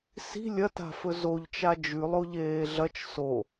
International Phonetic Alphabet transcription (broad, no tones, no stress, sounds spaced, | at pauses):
s i̤ lʲ ɐ t a̤ f ɵ z o ʎ t͡ʃ a d͡ʒ ʉ lˠ o ʎ eː ɮ ɐ t͡ʃ s o